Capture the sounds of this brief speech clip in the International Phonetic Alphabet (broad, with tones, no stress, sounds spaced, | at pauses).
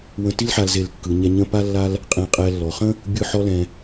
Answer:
w ə̃˧ t i˥ l ħ a˧ l z e˧˩ l kː ɯ˩˧ ɲ ɛ˧ ɲ ə̃˥˧ p a˥ lː a˥ l | qʼ ẽ˧˩ qʼ ɛ˧ lː ɔ˩˧ χ ə̃˥ | bʲ ɯ˥˧ ħ ɔ˥ l ɛ̃˧